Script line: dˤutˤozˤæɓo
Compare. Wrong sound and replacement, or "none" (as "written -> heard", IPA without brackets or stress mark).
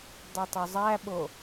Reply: none